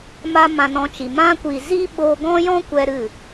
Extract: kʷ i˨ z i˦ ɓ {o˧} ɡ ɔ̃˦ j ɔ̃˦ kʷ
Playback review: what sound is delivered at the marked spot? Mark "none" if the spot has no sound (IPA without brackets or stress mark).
o˧